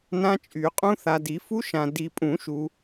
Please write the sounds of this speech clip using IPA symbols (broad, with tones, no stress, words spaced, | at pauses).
nã˦˥t͡ʃʼy˨˩˦qʼũ˦˥ θa˨di˨˩˦fu˦˥ʃã˨ di˨pʼũ˨˩˦ ʃu˨